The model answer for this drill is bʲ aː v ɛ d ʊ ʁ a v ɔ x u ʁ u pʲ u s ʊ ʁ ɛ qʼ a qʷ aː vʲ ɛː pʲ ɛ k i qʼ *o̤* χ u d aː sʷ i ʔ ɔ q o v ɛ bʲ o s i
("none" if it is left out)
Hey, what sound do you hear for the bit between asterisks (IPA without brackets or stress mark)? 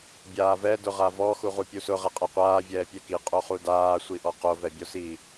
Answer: o